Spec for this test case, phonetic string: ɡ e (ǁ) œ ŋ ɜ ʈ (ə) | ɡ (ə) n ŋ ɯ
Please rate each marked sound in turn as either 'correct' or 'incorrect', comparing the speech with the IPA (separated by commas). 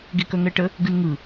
incorrect, correct, incorrect